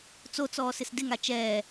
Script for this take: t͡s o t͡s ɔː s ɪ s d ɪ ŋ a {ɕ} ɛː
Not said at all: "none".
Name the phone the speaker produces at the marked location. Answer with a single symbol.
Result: t͡ʃ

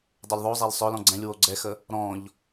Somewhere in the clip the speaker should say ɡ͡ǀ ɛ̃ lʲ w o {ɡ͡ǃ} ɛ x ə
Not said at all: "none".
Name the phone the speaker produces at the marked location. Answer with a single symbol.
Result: ɡ͡ǀ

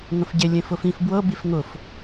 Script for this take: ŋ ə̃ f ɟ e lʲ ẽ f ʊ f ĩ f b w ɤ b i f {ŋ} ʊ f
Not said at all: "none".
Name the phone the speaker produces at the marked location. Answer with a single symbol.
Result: ŋ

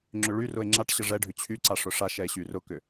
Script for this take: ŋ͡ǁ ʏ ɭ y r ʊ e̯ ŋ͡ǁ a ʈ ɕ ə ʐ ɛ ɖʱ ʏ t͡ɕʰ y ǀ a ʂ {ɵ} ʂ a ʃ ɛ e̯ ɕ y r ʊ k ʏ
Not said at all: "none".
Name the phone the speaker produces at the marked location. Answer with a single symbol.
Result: ʊ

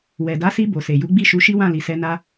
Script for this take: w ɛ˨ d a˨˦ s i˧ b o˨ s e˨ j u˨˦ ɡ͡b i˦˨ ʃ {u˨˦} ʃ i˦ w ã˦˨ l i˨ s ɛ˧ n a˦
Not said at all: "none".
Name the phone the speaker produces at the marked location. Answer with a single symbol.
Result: u˨˦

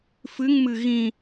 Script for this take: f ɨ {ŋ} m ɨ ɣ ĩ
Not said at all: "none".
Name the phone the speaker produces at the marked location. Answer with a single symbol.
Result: ŋ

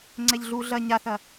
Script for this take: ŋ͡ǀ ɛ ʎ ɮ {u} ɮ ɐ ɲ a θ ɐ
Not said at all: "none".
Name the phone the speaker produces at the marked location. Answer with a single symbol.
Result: u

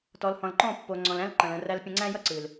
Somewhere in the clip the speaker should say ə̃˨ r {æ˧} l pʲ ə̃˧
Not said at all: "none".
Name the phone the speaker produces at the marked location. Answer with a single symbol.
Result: æ˧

